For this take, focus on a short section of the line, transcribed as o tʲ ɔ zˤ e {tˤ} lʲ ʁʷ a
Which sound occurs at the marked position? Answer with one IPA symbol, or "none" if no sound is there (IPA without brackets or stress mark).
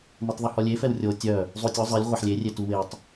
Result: none